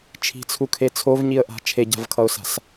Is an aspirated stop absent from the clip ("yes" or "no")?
no